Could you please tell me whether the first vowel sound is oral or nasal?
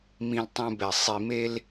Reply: nasal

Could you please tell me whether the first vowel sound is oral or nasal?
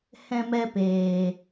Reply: nasal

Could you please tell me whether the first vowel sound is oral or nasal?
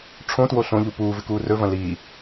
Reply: nasal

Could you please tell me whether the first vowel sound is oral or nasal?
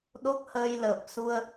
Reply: oral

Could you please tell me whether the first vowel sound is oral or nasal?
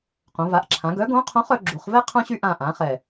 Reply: nasal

